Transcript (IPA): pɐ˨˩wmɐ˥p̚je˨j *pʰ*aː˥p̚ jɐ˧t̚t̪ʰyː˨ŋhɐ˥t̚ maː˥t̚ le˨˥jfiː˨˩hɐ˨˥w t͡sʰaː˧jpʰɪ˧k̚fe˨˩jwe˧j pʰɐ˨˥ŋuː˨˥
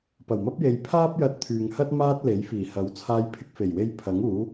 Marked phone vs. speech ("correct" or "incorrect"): correct